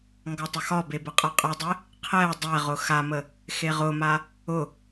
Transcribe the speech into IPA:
ŋ ɡ ɔ tˤ ə x ɒ b e b ə qʼ a qʼ ɯ dˤ e | qʰ ɛ dˤ ɛ ʁ ʊ x a m ə | x e ʁ ʊ m a | ʊ

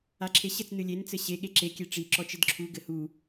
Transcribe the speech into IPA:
a ǁʰ e ɕ ɘ t͡s n ɨ lʲ e n t͡s ɘ ɕ e ɠ e ǁ e kʲ e ʈ͡ʂ i ǁ ɔ t͡ʃ ɘ d ǁʰ u ɡ ɘ h u

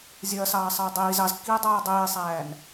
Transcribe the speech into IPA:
zʲ ɐː s ɑː sˤ ɐː y̯ dˤ iː z ɑ z kː iː dˤ ɑː dˤ iː sˤ æː n

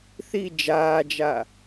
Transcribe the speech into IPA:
θ i d͡ʒ aː d͡ʒ a

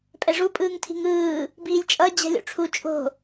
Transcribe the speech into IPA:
pʼ ɛ ʐ u pʼ ɯː ŋ tʰ i̤ ŋ ɯː | b iː lʲ t͡ʃʼ ʌ d͡ʑ ɛ̤ lʲ o̰ ʈ͡ʂʰ u t͡ʃʼ o̤

